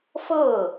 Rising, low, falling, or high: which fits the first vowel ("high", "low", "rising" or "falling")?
falling